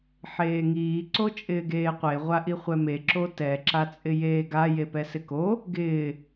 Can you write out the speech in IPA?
ħ eː ŋ iː ǀ o t͡ʃʼ ɪː ɡ eː qʷ e ʁʷ a ʔ i χʷ ɛ m e ǁ o t ɛ ǁ a t͡sʼ ɪ j eː ɡ a j e p ɛ s ɪ k o | ɡ ɪː

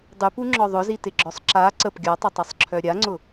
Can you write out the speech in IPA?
dˤ y p u ŋ͡ǁ ɔ ðˤ ʊ z i t ɪ ɡ͡ǁ ɔ sˤ ǁ a ǀ ə p ɡʲ ɔ tˤ ɪ tˤ ɐ sˤ ǁʰ œ ɾʲ a ŋ͡ǀ ʊ

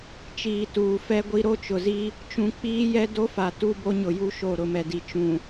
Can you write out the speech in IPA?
t͡ʃ iː˨ t uː˨ f ɛ˦ ɡʷ i˦ ɾ o˦ t͡ʃ ʊ˨ z i˦ | t͡ʃ ũ˨ k͡p iː˦ j ɛ˦ d o˦ f a˨ t u˦ b o˦ ɲ ʊ˨ j u˦ ʃ o˦˨ ɾ ʊ˨ m ɛ˨ d i˨ t͡ʃ ũ˨

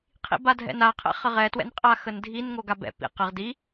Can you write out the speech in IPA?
qʰ ḭ b a dʱ ɛ̰ n a qʰ ɛ̰ χ ə ʁ ɛ t w ɛ̰ n qʼ a x ə n dʱ i n ŋ o ɡ a b ɛ̰ p ḭ q ə ʁ d i

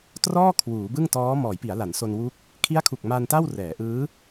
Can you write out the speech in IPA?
t r ɔː˥˩ kʰ w uː˩˦ b ɯ˥˩ ŋ t ɔː˦˥ m ɔː˩˦ j p i˩˦ a̯ l a˩˦ n s o˧ n w u˥˩ k̚ | kʰ i˦˥ a̯ kʰ u˨˩ k̚ m a˧ n t a˥˩ w r ɛː˩˦ ʔ ɯː˦˥

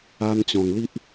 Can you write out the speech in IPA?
a˧ n t͡ɕ ɔ̃˨˩ ŋ l i˦ ʔ

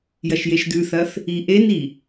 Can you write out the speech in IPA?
j ɐ ʃ j e ʃ d̪ ʉ θ ɐ θ | i ʔ e n i

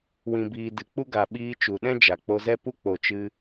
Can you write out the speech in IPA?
w ĩ˨ b iː˨ d ɨ˨ k͡p u˦ ɡ a˨ ɓ iː˧ t͡ʃ u˨ ɗ ɛ̃˦ d͡ʒ a˨ k͡p o˧ z ɛ˦ p u˦ k͡p o˨ t͡ʃ ɨ˧

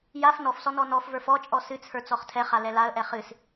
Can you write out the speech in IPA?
j a f n ɔ f s ɔ n ɔ n ɔ f v ə˞ f ɔ t͡ʃʼ ɔ s ɨ t͡sʰ ə˞ t͡s ɔ χ tʰ ɛ χ a l ɛ l a ə̯ ʔ ɛ χ ɨ s

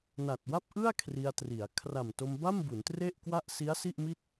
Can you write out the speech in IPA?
n a˨˩ t̚ w a˥˩ p̚ ʔ ɯ˥˩ a̯ kʰ r i˧ a̯ t r i˩˦ a̯ kʰ r a˨˩ m t o˧ m b a˥˩ m b u˩˦ n t r e˥˩ ʔ k w a˥˩ ʔ s i˦˥ a̯ s i˥˩ ʔ m i˥˩ t̚

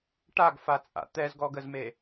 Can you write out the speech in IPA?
ʈ a ɡ f a t͡sʼ a̰ t̪ ɛ z ɡ ɔ ɡ ə z m e

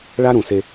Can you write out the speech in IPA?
ɭ a˦ ɾ ũ˨ s e˦

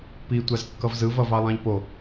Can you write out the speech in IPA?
p i tʷ a z kː ʌ v z ɯ v ʌ v ɑ lˠ ɑ̃ ʎ p o

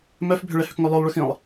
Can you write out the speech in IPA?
m œ f bʱ ʏ ɭ ɛ h ʏ k ŋ œ lˠ œ lˠ ɭ ʏ x ĩ lˠ

